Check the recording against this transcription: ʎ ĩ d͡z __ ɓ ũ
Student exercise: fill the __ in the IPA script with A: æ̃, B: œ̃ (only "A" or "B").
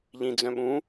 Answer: B